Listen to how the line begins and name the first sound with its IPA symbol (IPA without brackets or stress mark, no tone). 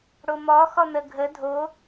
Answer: ɽ